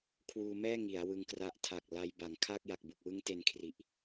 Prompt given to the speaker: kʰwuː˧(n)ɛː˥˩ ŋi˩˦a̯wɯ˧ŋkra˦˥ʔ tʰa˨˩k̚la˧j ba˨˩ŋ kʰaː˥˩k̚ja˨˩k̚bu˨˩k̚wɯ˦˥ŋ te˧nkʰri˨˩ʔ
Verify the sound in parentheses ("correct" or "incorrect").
incorrect